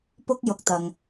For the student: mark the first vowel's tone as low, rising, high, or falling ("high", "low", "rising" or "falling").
high